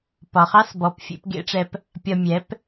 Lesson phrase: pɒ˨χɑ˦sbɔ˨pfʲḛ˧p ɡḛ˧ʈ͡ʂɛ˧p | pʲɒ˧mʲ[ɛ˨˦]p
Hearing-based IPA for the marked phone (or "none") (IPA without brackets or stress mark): ɛ˨˦